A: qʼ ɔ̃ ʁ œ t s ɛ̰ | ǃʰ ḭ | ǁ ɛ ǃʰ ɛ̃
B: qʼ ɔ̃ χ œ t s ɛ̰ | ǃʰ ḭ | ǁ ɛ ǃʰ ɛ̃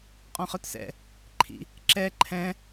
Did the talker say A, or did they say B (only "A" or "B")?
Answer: B